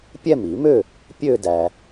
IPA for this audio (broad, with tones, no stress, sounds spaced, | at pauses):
pʲ ɛ˥˩ m i˨˩˦ m ø˥˩ | pʲ ø˥˧ d æ˩